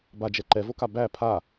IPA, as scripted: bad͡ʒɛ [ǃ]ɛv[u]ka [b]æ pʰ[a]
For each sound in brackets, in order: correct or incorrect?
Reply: correct, incorrect: o, correct, correct

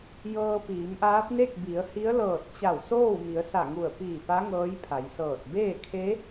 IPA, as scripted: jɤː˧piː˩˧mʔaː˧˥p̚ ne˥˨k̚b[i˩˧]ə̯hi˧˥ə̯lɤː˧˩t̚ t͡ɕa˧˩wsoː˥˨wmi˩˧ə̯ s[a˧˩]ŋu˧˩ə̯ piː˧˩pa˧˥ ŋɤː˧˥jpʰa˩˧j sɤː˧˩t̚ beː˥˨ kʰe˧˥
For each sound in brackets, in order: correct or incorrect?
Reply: correct, correct

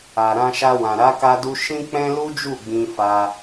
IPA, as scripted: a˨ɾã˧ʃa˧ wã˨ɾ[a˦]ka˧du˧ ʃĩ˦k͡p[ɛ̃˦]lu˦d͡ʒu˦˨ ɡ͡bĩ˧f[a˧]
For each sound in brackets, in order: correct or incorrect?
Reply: incorrect: a˨˦, correct, correct

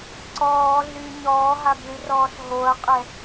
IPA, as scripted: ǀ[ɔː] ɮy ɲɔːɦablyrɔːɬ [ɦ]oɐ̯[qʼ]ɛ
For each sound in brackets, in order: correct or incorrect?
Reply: correct, correct, correct

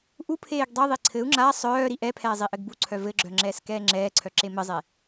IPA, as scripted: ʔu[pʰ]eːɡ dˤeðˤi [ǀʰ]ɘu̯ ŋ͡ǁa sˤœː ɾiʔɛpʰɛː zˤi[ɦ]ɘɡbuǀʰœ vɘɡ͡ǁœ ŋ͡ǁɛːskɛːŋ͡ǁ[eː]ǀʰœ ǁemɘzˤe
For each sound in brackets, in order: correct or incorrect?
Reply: correct, correct, incorrect: ʔ, incorrect: ɛː

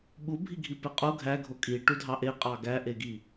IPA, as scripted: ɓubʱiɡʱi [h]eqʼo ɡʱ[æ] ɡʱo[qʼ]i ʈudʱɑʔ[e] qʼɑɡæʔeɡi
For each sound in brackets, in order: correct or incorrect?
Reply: incorrect: p, correct, incorrect: kʼ, correct

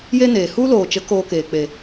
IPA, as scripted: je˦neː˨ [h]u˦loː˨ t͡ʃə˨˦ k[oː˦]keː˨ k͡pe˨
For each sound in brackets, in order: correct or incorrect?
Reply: correct, incorrect: oː˧

